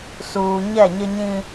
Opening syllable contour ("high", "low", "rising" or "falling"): low